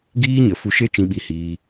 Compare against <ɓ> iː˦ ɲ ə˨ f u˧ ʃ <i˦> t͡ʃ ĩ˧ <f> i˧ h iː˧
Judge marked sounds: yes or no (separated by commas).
no, no, no